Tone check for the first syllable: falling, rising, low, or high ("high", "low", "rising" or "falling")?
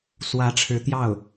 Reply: rising